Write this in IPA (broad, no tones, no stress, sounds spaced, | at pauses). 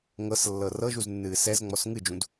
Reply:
ŋ ɤ s lː ɤ r ɤ ʒ u z nː ɨː s ɛ z ŋ͡m ɔ s ŋ ɨ d͡ʒ ũ d